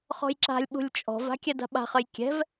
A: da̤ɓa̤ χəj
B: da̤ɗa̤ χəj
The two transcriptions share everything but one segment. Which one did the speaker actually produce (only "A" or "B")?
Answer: A